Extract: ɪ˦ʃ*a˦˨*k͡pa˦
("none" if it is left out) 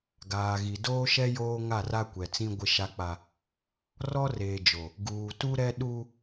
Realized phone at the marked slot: a˦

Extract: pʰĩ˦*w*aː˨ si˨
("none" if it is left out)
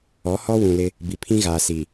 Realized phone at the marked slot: ɣ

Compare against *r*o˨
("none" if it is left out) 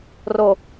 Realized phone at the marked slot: r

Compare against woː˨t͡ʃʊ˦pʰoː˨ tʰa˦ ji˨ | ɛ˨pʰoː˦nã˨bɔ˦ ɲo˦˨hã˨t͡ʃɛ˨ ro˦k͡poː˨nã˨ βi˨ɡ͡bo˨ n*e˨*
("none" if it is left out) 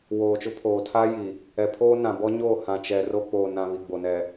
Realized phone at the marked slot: ɛ˨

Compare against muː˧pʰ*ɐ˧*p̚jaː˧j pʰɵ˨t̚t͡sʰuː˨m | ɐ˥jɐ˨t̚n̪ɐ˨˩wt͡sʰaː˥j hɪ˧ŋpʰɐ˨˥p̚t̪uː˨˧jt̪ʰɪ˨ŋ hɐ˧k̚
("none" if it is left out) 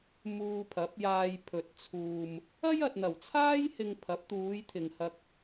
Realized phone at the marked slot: ɐ˨˥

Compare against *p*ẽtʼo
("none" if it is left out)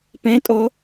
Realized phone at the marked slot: p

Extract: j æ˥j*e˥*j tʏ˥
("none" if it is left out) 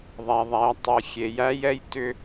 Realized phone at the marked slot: ɛ˥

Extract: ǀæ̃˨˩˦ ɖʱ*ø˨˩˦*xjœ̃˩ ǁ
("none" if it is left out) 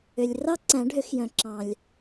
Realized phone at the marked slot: ø˨˩˦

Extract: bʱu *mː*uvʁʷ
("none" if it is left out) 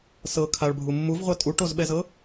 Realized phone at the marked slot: mː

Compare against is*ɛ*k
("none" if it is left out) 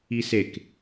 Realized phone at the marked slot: e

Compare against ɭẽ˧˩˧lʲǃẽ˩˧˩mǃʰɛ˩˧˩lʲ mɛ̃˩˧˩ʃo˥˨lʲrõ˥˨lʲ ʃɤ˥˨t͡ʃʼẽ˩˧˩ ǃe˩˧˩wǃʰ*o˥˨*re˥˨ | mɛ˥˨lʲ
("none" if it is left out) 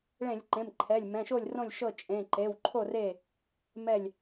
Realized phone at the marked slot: o˥˨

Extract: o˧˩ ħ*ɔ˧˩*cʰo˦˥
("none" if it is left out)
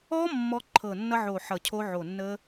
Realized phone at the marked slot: ʌ˧˩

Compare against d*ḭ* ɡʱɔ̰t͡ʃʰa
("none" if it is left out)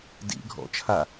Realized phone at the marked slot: ḭ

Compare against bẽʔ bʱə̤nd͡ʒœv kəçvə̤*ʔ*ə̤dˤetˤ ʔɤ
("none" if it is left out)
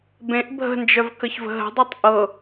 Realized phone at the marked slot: ɦ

